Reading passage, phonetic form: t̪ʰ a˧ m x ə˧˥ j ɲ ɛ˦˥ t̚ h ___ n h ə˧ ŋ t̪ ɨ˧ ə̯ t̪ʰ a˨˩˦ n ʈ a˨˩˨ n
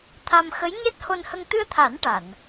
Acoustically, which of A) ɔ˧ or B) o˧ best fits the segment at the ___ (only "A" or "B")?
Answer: B